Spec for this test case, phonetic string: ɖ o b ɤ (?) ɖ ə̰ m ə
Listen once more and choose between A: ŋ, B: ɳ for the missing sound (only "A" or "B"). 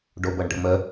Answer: B